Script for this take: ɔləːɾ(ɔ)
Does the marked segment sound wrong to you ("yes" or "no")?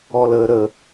yes